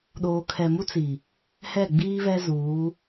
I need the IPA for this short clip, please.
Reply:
ɗoː˨kʰɛ˨mu˦t͡si˨ | hɛ˦˨ɡ͡biː˦βɛ˦zuː˨˦

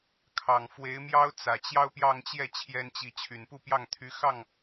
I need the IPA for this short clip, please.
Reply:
kʰɑ˨˩ŋfwe˧˥ɪ̯mjɑ˥ʊ̯ t͡sä˨˩t͡ɕjɑ˥ʊ̯ pjɑ˥˧ŋt͡ɕjɛ˥˩ t͡ɕʰjɛ˥nt͡ɕi˧˥ t͡ɕʰy˨˩npu˥˧ pjɑ˥˩ŋt̪ʰy˧˥xɑ˥˩ŋ

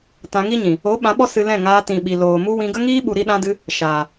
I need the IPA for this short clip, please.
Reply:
tã˧ŋi˦ɲĩ˨ | o˨˦ ɓã˨˦ɓɔ˦ sɨ˧lɛ̃˦˨ ŋaː˧tĩ˨ɓi˨ loː˨mu˦wĩ˧ ɡə˦ŋiː˦ɓu˨ ɾi˧ɗã˧dɨ˧ | ʃaː˨

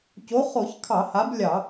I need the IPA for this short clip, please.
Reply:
co˨˥χo˧˩˧çkʰɑ˧˩˧ ha˨˥blʲɑ˧˩˧

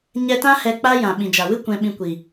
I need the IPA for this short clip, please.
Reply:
ɲɛ˧tã˦ hɛ˧k͡pa˦jã˨ ɓĩ˨d͡ʒa˨wɨ˦ kʷɛ̃˧ɓĩ˧kʷi˨

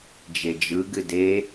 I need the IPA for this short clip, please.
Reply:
d͡ʒed͡ʒɯ ɡɨde

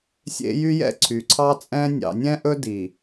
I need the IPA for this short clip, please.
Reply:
sʲḛ˦jy˦jɛ̰˦˨ ǀʰy˨ǀʰɑ˦t͡sʼɛ̃˦ nʲɑ̰˨nʲɛ̃˦ʔɵ˦ di˨

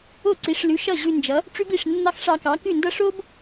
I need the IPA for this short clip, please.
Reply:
o˥˩ǀi˩˥ʂlʉ˩˥ ʃʌ˥˩ ʑʉ˧nd͡ʒʌ˩˥ | ʈ͡ʂʉ˥bi˥˩ʂnːɑ˥x ʂɑ˧kɑ˩˥kʉ˥˩ndʌ˥ ʂo˥b

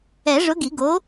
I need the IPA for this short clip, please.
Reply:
ɛ˨˩˦ʐʊ˨˥ ɡi˨˩˦ɡo˨˥

